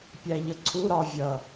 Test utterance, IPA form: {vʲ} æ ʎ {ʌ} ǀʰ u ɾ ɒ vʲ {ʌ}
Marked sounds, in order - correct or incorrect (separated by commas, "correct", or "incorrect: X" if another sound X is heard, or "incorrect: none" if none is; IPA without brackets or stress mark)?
incorrect: pʲ, incorrect: ə, correct